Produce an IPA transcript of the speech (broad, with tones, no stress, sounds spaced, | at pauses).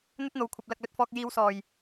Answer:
n̪ ɵ˥ t̚ n̪ o˨ w kʷʰ ɐ˨ p̚ l ɐ˨ k̚ l ɵ˧ t̚ f ɔː˧ k̚ j iː˨˧ w s ɔː˨˩ j